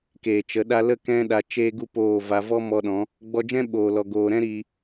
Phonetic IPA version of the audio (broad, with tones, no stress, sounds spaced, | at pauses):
k eː˨ t͡ʃ ə˨˦ ɗ a˧ l ə˦˨ k ɛ̃˦ ɗ a˧ t͡ʃ eː˦ ɡ u˦ p oː˦˨ v a˧ v ɔ˦ m ɔ˧ ɗ ɔ̃˨˦ | ɡ͡b ɔ˧ d͡ʒ ɛ̃˦ ɓ oː˨ l ɔ˨ ɡ oː˨ ɾ ɛ̃˦ ɾ i˧